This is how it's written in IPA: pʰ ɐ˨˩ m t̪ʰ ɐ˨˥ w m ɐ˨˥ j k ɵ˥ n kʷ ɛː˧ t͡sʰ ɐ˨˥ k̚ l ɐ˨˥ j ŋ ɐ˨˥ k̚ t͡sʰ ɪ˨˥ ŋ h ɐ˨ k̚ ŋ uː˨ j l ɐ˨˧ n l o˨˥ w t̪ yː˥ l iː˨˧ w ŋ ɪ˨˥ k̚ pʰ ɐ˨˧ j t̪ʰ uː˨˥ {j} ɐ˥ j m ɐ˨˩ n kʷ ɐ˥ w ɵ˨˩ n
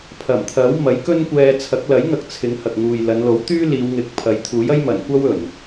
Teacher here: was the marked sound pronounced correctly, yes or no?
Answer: yes